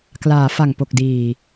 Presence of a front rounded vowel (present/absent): absent